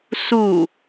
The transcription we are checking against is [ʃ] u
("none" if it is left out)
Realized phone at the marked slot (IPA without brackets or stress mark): s